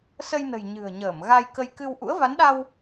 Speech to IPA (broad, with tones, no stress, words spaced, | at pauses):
sə˧jnə̤˨˩j ɲɨ̤˨˩ə̯ɲəː˧˩m ɣa˧jkə˧j kɨ˧w ʔṵ˧˥ə̯va˨˦nɗa˧w